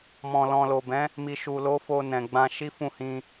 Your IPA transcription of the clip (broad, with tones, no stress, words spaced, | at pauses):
mɔ̃˨lɔ̃˨lo˨bɛ̃˨˦ | mi˨ʃu˨lo˨˦ fo˧nɛ̃˨ɡ͡bã˧ ʃi˦fũ˦˨hĩ˧